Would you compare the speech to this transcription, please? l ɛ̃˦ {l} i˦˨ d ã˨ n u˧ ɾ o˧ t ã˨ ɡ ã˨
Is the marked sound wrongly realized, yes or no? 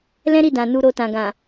yes